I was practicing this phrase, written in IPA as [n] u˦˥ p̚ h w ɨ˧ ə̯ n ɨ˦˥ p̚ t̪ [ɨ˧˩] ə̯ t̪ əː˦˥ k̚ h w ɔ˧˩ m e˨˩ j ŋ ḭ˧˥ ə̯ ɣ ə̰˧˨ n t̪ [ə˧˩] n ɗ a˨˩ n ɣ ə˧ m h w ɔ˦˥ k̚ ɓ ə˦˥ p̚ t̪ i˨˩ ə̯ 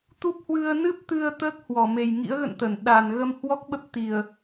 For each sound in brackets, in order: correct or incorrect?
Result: incorrect: t̪, incorrect: ɨ˧, correct

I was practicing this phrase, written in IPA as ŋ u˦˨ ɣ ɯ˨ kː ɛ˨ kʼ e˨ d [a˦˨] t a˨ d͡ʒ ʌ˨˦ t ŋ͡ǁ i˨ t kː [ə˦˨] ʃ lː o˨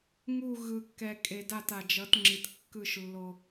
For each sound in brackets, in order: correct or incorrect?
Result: correct, incorrect: ɯ˦˨

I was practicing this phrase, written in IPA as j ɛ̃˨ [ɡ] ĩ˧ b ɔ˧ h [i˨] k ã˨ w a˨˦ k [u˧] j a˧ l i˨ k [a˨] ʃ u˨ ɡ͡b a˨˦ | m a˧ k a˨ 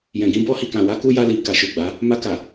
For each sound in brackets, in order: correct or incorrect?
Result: correct, correct, correct, correct

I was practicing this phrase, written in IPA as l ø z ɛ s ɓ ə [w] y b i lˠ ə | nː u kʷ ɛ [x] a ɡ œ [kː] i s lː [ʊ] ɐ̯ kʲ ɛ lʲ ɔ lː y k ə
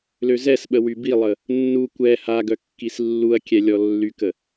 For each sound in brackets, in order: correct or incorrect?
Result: correct, incorrect: h, correct, incorrect: u

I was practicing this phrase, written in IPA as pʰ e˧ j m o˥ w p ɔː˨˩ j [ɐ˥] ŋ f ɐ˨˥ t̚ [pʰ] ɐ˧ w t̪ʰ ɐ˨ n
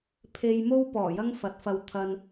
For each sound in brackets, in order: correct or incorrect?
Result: correct, incorrect: f

